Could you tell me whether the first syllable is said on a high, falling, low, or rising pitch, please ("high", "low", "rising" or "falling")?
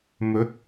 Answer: rising